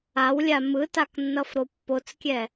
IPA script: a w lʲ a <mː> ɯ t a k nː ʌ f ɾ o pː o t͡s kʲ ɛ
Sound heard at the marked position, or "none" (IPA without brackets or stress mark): m